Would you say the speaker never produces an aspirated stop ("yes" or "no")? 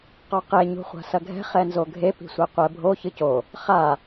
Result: yes